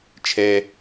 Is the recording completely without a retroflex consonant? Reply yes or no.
yes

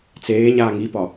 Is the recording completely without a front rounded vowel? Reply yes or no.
yes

